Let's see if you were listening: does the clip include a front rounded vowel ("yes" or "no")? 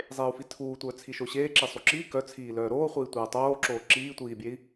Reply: yes